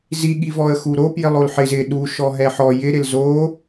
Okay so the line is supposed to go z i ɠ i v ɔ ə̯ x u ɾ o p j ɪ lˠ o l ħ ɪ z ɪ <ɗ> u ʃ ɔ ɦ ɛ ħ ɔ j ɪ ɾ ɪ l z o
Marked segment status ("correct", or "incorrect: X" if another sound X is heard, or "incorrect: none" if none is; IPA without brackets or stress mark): correct